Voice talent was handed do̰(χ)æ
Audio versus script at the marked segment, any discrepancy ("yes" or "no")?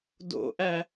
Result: yes